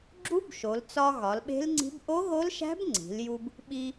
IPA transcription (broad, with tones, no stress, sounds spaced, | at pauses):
ɡ͡ǁ u˦˥ b ʃ o˩˧ l t͡s ɒ˧ ɣ ɒ˩˧ l ɓ e̤˦˥ l ŋ͡ǀ i̤˦˥ b ʔ o˦˥ ɣ o˦˥ l ʃ æ̤˦˥ b ŋ͡ǀ i̤˩˧ l j u˧ b | ɓ i˧